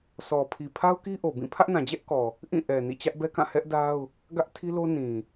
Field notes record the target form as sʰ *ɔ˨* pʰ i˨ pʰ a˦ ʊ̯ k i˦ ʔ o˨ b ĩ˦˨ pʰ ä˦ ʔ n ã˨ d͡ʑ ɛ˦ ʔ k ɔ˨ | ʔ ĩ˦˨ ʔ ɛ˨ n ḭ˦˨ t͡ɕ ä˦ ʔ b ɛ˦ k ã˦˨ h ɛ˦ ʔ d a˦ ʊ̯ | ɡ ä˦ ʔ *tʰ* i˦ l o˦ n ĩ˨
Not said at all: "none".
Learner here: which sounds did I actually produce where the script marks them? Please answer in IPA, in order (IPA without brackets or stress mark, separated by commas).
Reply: ɔ˨, tʰ